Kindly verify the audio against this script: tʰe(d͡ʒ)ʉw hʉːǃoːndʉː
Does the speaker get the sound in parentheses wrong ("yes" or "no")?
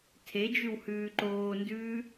no